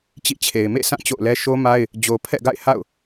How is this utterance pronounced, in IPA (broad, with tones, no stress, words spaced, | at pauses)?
t͡ɕḭ˦˨t͡ɕʰe˨ɪ̯ mḛ˦˨sã˦˨ t͡ɕo̰˦˨ʊ̯lɛ˦ ʃo˦ma˦ɪ̯ | d͡ʑo˨pʰɛ̰˦˨ɡa̰˦˨ɪ̯ ha̰˦˨ʊ̯